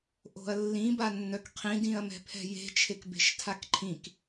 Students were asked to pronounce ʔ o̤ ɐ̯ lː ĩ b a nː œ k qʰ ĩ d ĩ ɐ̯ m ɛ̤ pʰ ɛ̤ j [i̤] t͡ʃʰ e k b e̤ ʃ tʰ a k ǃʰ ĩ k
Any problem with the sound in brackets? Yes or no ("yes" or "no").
yes